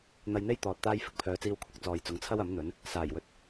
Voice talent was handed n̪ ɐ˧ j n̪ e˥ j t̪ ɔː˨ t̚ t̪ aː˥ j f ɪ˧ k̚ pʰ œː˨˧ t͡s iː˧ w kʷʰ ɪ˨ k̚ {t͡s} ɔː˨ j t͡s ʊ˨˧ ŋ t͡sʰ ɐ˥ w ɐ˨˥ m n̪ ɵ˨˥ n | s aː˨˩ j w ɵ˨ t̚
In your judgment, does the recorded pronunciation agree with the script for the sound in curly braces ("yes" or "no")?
yes